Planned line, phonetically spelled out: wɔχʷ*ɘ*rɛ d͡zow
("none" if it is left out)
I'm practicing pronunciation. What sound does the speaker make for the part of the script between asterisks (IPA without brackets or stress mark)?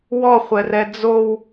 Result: ɛ